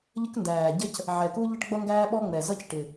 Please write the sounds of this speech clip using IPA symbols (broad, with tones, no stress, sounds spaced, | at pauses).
ʎ ə˥ k n d æː˨˩ ɟ ə˥ c | ʕ ɛ˨˩ k u˥ ʎ ʌ˥ ʈ ɡ͡b ʌ˥ ŋ ɡ æː˥ ɓ ɔ˥ ŋ͡m ɛ˨˩ z ʌ˥ c ʈ ɪ˨˩